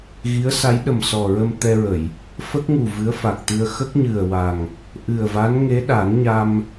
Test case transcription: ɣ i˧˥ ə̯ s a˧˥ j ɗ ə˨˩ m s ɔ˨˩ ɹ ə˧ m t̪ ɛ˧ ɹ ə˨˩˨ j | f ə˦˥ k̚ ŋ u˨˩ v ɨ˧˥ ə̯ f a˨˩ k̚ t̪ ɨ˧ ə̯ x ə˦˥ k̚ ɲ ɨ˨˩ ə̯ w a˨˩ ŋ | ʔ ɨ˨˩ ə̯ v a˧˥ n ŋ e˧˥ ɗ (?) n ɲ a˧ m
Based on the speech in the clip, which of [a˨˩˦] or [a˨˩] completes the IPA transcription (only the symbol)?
a˨˩˦